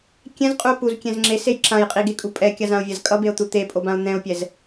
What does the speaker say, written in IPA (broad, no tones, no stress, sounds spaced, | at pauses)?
kʲ ɛ̃ z qʼ u o̯ p u z kʲ ɛ̃ z ŋ͡ǁ e s e j ǁ ã j qʼ i ɡ e kʼ u pʼ ɛ kʲ a z ã o̯ vʲ a z kʼ ʌ b e o̯ t̪ u t̪ e pʼ o b ã o̯ n̪ ɛ̃ o̯ pʲ ɛ z